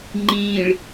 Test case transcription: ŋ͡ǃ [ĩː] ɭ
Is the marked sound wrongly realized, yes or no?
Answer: no